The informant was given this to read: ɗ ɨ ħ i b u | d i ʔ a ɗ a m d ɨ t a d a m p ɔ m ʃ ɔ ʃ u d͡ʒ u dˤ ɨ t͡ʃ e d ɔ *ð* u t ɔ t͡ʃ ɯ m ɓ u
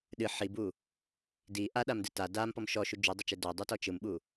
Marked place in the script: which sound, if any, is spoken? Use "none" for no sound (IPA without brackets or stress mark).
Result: dˤ